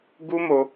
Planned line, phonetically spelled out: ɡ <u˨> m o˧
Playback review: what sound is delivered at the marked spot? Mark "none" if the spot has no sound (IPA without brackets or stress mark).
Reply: u˦